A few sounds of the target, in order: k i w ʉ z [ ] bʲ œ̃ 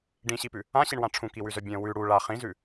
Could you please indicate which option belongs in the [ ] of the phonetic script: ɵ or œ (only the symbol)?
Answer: œ